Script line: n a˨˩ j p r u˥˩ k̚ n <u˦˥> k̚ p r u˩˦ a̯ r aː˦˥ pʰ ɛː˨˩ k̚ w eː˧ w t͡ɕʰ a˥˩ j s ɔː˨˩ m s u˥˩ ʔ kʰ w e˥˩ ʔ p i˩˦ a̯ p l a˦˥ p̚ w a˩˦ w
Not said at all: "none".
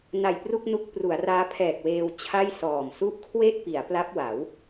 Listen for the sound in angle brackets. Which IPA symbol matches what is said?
u˦˥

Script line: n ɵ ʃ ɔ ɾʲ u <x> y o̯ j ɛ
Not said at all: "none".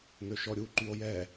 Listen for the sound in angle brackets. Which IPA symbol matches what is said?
ǃ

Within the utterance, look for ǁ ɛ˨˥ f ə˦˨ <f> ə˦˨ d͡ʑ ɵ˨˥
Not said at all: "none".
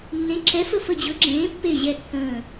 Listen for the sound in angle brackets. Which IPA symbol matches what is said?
f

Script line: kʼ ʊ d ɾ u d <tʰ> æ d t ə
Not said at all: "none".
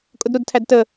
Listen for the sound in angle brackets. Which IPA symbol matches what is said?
tʰ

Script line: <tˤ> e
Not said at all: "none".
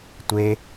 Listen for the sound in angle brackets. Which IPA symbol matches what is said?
tʷ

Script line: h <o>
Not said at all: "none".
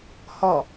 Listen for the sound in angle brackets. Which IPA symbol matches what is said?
ɔ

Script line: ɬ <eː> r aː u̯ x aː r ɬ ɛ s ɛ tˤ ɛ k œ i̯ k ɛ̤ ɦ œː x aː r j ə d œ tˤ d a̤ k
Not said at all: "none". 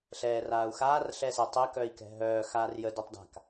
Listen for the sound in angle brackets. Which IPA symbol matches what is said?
ɛː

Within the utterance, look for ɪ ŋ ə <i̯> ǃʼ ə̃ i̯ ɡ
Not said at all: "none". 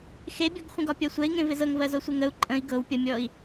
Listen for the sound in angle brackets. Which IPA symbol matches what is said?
u̯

